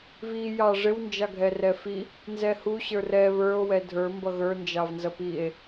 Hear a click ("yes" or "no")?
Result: no